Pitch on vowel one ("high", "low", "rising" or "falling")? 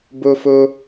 high